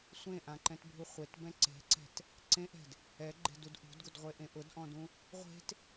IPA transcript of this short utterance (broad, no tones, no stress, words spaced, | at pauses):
sʷẽʔãǃɛ̃tbʱu χʷetbɛ̃ ǀe̤ǀɛ̤t | ǀẽʔɛ̤d | ɛɡ͡ǃe̤dud ʔṳdɡʊdʁʷeʔẽ ʔʊdʔɔ̃dũ | ʁʷe̤t